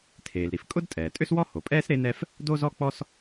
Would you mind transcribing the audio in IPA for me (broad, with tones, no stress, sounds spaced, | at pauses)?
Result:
tʰ eː˩ l ɾ i˩ f kʼ ʊ˥ d tʼ ɛː˩ tʼ ʏ˥ s w ɔ˥ h o˩ pʼ ɛː˥ s ɾ e˥ n ɛ˥ f | d o˥ z ɔ˥ k͡p ɔ˥ s